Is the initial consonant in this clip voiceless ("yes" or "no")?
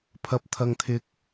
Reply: yes